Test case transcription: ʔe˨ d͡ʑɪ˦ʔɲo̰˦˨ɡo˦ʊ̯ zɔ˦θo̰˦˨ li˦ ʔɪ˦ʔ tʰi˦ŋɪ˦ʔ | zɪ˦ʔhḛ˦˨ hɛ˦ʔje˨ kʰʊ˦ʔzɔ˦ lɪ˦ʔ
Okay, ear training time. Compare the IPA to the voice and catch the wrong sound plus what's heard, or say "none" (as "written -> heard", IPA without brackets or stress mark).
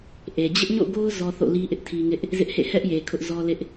none